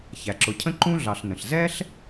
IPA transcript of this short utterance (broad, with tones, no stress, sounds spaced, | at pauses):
ç æ˩ ǁ ʊ˨ cʰ ə̃˥ ǃ ũ˥ ɮ ɑ˨ ɬ n ə̃˩ ɬ z ɛ˥ ɬ